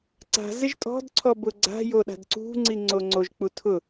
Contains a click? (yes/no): yes